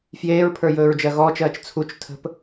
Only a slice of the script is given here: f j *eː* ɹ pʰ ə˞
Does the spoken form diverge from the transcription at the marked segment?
no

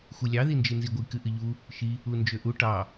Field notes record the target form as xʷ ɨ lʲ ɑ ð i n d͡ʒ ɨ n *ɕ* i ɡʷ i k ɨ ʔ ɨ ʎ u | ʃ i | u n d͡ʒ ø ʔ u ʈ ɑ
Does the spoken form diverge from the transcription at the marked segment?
yes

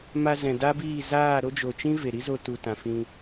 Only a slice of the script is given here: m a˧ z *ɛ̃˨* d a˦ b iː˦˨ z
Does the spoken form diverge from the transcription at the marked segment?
no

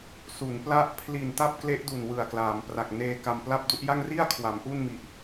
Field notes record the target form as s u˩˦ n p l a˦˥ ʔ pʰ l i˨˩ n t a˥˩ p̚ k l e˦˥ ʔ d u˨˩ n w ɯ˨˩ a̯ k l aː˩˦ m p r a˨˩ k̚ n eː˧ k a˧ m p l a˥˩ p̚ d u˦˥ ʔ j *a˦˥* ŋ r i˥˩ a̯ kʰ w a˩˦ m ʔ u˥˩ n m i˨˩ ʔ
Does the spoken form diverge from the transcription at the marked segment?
yes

